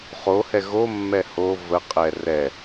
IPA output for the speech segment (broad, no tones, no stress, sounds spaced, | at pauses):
χ o h ɛ ɣ o mː ɛ h o v ə qʼ ɛ r ɛ